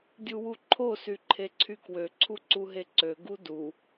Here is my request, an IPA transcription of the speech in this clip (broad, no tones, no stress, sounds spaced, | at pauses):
dʲ u w u ǃʰ o s y ǃʰ e ǀʰ y k w ø ǀʰ u ǀ u ɦ e ǀ ø ɡ u d u